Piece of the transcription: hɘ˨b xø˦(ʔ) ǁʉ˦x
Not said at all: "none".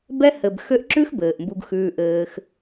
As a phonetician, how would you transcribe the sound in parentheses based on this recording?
ʔ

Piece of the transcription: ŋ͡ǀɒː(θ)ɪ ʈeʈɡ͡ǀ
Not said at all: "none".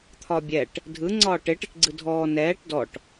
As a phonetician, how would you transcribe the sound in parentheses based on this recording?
ʈ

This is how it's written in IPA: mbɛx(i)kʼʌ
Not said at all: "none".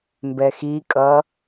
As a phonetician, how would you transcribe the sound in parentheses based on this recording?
i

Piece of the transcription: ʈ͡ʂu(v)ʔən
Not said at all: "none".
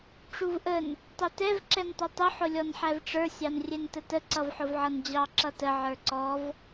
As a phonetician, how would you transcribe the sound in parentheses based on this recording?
v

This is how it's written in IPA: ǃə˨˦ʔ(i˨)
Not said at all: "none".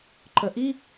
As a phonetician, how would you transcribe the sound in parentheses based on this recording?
i˦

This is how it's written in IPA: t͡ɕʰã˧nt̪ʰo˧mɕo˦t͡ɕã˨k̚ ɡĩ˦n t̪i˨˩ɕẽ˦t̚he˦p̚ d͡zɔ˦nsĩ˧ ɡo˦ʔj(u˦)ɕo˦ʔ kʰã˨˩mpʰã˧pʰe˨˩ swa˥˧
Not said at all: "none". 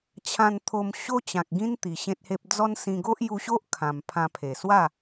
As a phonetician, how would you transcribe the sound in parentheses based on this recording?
u˧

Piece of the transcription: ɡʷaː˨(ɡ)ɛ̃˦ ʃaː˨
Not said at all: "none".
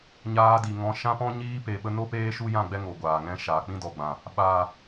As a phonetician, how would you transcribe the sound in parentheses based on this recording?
ŋ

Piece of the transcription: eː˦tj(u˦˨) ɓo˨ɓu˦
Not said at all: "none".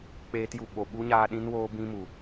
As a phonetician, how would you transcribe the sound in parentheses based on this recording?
u˧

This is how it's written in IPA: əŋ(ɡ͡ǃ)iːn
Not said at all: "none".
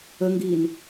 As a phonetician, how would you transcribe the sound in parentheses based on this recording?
ɡ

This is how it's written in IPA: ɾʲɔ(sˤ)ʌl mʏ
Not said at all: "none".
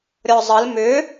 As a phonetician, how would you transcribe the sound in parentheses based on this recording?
zˤ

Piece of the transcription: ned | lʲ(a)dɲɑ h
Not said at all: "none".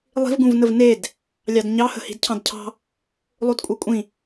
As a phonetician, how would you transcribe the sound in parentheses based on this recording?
ɑ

